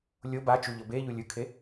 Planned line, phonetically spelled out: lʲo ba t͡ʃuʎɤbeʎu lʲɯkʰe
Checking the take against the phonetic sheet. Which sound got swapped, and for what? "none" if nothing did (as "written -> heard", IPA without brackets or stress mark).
none